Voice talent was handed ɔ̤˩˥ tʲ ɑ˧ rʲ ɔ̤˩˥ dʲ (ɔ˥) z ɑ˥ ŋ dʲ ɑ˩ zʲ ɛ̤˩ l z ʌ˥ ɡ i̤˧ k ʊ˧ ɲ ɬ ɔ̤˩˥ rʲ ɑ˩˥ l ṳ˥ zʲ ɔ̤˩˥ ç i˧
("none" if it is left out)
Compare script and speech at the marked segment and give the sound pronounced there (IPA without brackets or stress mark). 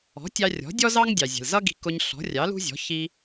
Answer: ɔ˥